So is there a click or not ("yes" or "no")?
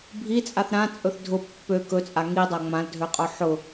no